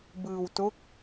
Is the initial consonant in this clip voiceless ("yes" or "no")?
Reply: no